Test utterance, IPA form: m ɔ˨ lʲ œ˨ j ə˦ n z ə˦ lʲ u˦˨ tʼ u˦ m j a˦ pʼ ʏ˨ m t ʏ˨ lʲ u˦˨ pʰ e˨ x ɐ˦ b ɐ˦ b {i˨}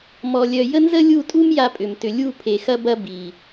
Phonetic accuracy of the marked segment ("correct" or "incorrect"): correct